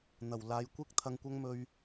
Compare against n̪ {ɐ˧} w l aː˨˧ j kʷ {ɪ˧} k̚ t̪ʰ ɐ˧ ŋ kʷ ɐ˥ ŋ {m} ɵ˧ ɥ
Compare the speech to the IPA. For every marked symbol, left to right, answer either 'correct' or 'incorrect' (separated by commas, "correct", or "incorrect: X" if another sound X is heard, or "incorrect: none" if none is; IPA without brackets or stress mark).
incorrect: ɐ˨˩, correct, correct